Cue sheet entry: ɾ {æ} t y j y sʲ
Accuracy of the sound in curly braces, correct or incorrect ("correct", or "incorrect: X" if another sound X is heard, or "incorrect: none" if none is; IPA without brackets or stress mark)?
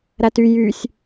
correct